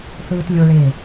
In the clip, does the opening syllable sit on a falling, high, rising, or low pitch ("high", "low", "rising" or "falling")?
high